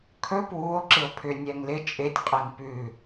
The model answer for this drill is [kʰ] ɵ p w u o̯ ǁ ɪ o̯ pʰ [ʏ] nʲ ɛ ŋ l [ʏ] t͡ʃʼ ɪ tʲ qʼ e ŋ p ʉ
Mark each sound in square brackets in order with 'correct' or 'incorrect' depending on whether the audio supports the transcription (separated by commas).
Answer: correct, correct, incorrect